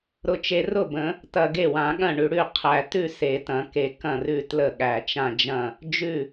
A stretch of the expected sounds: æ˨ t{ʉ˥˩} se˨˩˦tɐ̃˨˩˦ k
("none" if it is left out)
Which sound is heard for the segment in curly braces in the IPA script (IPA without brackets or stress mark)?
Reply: ʉ˥˩